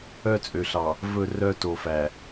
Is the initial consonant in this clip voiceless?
yes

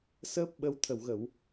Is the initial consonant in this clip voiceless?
yes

